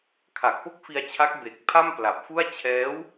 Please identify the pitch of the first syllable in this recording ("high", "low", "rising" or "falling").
low